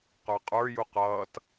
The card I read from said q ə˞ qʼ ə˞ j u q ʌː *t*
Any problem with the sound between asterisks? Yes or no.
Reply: no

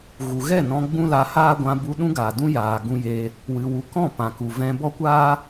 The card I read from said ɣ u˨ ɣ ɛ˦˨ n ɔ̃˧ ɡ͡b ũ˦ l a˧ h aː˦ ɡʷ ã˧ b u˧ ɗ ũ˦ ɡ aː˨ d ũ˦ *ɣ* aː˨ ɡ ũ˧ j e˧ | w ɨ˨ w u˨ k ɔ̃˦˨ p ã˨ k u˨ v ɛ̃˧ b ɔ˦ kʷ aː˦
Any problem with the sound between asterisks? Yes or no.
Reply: yes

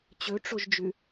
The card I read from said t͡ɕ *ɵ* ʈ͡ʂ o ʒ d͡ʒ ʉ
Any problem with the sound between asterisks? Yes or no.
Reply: no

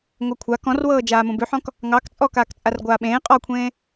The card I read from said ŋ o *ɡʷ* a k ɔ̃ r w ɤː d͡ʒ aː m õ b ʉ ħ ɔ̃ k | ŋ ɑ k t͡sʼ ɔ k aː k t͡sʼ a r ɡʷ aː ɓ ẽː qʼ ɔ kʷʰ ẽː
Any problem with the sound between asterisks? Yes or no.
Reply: yes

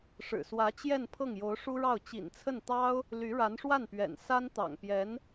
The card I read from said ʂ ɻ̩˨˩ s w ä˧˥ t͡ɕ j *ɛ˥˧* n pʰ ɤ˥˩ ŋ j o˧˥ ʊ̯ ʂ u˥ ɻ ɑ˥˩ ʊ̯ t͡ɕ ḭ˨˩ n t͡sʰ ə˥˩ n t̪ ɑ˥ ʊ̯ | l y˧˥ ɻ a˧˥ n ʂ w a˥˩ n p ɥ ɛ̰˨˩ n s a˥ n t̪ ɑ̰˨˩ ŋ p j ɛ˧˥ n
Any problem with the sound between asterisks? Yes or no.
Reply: no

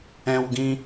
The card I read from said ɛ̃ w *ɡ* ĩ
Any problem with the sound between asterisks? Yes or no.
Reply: no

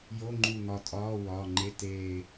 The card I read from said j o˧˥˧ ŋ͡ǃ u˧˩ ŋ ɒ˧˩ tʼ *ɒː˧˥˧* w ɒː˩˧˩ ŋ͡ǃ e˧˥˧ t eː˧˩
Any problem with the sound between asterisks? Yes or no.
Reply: no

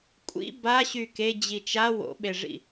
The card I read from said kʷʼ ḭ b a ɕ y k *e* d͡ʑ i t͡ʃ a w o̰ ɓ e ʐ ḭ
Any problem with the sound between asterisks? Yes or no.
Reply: no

